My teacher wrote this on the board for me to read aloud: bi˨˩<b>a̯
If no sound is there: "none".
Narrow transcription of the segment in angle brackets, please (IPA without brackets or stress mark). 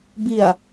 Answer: none